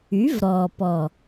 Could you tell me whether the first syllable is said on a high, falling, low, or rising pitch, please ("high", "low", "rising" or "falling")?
rising